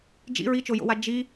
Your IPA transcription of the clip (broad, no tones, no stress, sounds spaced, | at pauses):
d͡ʒ ḭ ɹ i t͡ʃ o j o̰ w a d͡ʒ i